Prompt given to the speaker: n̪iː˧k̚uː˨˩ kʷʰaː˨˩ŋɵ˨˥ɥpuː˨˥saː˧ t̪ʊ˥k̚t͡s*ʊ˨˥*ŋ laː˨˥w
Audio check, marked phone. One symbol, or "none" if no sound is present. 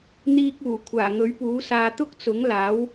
ʊ˨˥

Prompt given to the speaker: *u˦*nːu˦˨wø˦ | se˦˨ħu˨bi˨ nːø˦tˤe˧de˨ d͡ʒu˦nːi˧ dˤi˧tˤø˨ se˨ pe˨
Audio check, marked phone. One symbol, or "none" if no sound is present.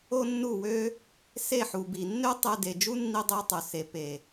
o˦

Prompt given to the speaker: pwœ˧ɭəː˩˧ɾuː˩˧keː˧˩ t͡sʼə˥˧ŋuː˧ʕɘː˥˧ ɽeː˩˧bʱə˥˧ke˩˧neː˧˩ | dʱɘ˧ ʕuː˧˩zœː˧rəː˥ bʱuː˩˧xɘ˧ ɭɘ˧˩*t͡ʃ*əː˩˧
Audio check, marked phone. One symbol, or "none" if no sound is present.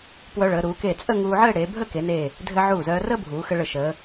ʃ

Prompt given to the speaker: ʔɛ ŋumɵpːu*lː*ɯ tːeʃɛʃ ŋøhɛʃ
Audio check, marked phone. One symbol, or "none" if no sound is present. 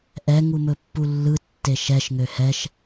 lː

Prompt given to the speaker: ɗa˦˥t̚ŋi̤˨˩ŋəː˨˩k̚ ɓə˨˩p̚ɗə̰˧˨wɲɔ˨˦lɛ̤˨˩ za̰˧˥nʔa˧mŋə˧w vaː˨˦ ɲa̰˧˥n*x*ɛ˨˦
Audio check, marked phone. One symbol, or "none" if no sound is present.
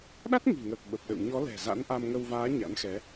x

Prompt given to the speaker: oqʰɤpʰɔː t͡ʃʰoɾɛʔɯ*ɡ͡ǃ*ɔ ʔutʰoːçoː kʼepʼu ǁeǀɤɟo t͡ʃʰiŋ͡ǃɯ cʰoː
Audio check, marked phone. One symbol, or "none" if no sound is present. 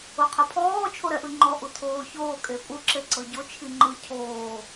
ŋ͡ǃ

